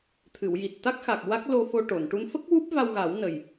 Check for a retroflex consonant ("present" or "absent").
present